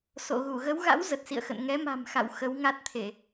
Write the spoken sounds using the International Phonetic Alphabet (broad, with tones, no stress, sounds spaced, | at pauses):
s o̰˧˨ ɣ u˧˩ ɣ ə˨˦ w ɣ a̰˧˥ w z ə˨˩ t̚ s ḭ˧˨ ə̯ x ə̰˧˨ n ŋ ɛ˨˦ m a̤˨˩ m x a̰˧˨ w x ə˨˦ w ŋ a˦˥ t̚ t̪ʰ e˧˩˨